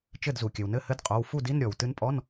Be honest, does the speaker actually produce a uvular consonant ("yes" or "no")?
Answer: yes